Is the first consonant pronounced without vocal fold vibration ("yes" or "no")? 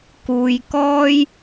yes